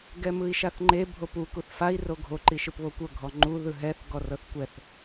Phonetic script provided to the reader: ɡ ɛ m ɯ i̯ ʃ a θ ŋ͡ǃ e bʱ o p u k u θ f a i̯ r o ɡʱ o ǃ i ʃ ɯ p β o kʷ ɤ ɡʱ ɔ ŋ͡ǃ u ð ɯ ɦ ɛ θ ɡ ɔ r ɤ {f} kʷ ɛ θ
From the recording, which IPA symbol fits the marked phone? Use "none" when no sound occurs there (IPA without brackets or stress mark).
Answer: θ